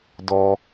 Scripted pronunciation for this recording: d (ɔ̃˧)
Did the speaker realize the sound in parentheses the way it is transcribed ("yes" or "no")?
no